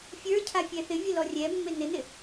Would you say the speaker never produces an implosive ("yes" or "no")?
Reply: yes